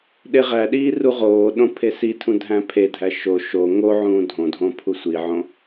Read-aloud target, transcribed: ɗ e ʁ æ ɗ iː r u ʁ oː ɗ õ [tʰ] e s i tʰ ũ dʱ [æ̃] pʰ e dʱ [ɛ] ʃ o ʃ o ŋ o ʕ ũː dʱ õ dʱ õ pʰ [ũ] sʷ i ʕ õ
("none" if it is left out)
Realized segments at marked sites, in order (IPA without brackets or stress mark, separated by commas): pʰ, æ̃, æ, u